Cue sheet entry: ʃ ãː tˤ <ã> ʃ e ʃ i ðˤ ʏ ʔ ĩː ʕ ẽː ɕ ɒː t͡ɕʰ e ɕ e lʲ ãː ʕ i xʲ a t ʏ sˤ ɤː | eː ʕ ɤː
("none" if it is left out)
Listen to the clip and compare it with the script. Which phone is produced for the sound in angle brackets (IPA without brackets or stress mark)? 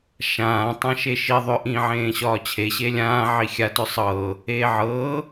ã